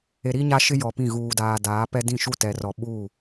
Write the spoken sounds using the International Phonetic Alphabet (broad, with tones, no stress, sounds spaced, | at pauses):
e˨ ɾ i˦ ɲ a˦ ʃ ɪ˦ j ɔ˨ p ĩ˦˨ ɣ uː˨ d aː˨ d aː˨˦ p ɛ˦ d ĩ˦˨ ʃ u˦˨ t ɛ˨ r ɔ˨ ɓ u˦˨